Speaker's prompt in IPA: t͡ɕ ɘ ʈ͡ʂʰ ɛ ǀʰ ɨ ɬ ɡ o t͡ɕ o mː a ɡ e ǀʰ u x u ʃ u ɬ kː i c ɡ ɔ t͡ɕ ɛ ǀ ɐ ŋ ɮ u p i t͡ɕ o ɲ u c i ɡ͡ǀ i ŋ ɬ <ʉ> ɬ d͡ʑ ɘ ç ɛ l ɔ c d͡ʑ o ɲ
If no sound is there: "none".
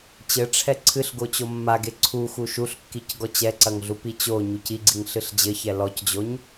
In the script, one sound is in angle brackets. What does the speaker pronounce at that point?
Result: ɨ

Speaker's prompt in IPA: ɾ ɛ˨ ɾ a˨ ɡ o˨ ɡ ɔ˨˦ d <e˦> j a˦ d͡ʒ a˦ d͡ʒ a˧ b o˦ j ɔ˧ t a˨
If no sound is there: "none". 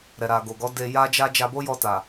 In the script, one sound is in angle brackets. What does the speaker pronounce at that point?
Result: e˧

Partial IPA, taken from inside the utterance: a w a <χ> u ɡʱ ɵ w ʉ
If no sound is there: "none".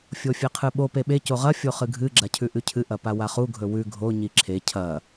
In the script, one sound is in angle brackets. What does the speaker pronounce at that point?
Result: χ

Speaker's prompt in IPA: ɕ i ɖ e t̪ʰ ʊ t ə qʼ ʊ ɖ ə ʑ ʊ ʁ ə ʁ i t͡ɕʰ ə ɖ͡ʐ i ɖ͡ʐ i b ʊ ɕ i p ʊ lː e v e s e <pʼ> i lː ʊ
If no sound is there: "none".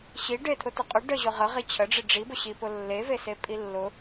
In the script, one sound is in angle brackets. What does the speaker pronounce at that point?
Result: pʼ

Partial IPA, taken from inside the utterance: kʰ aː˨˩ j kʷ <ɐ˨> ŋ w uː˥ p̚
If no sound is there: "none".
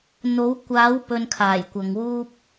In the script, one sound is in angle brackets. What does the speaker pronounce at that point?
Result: ɐ˨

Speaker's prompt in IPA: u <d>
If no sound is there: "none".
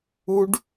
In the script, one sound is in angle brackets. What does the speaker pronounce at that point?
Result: ɖ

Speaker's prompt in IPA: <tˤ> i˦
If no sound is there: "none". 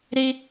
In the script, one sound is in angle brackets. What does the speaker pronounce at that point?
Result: ɾ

